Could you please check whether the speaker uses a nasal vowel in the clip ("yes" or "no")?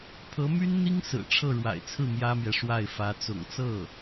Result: no